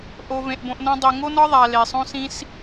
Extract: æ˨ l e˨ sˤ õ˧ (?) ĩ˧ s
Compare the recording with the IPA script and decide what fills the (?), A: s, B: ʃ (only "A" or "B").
A